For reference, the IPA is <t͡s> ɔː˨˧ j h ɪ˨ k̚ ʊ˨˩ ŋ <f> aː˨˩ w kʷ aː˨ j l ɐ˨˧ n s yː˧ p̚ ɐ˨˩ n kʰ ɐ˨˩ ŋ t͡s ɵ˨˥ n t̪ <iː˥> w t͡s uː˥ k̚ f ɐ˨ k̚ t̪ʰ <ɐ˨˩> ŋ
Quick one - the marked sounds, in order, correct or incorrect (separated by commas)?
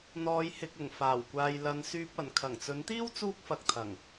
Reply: incorrect, correct, correct, correct